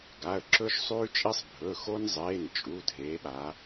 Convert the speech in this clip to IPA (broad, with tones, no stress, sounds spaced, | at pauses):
ɡ a˩˧˩ ə̯ ǁ ɵ˦ ʃ sˤ ʉː˦ t͡ʃʼ i˦ sˤ bʱ ɵ˩˧˩ x o˦ n zˤ eː˩˧˩ n t͡ʃʼ u˩˧˩ dʱ eː˩˧ ɓ a˩˧